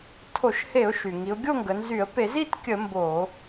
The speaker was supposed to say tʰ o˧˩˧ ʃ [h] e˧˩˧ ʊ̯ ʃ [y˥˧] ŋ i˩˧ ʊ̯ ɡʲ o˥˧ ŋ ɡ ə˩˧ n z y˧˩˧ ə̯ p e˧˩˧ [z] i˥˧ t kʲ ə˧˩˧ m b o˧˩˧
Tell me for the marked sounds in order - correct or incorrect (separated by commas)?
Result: correct, incorrect, correct